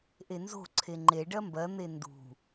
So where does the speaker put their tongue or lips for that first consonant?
throat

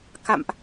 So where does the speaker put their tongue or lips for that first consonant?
velum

